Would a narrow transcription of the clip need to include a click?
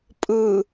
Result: no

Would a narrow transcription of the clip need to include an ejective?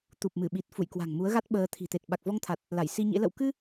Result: no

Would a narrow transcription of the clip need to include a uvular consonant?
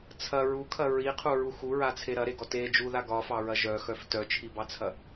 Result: yes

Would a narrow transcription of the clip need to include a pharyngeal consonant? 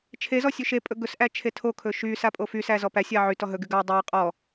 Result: yes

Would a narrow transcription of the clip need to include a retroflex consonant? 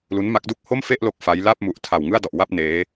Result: no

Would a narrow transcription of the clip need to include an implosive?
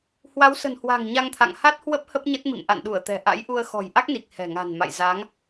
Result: yes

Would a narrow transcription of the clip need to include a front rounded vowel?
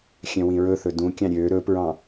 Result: yes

